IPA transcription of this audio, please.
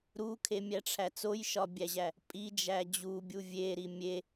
ɾukʰemʲæʈ͡ʂʰæ t͡sojʃɒbʲæʑæ | pʼid͡ʒæ d͡ʑubʲu vʲeɾi mʲe

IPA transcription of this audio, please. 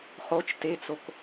χot͡ʃ tet͡sok

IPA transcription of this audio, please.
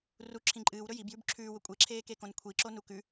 ru ǁʰĩǃʼɨːw ɾɵjibjʉb ǁʰʉːwɵ kʷʼeǁʰeːkekõn kʷʰiǁonu kʉ

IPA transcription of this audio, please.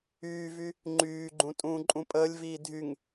yːvy | ŋ͡ǃyːɡ͡ǃũ tʼũːǃʼũpʼəːlʲviː dʱyŋ

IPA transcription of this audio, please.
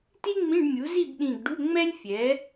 ti˥ŋ͡mĩ˧˥˧ɖmʲu˩˥ zi˥˨bɗĩ˧˩ɡ ɖu˧˥˧ŋ͡mɛ˥lʲfʲɛ˩˥

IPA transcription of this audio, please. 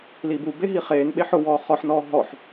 libube ɦiχeːn ɓeħʊwɔː χɔħnɔː ɦɔħ

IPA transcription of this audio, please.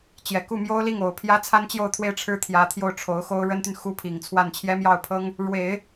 t͡ɕjɛ˨˩ku˥˩ mjo˥ʊ̯li˥˩ŋ o˨˩ʊ̯pʰjä˥ t͡sʰa˥nt͡ɕjo˥˧ʊ̯t̪ʰwe˥˩ɪ̯ ʈ͡ʂʰɻ̩˥t̪ʰjä˧˥t̪ʰjo˥˩ʊ̯ ʈ͡ʂʰo˧˥ʊ̯xo˥ʊ̯ ɻə˥nt̪y˨n xu˥˩pʰi˨˩ŋt͡sʰwa˥˩n t͡ɕʰjɛ˥mjɑ˥˩ʊ̯pʰɤ˥ŋ | ɻwe˨˩˦ɪ̯

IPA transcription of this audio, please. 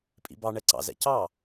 pʼḭbɑ ɳɛǀɑ̰ zɛ̰cɑ

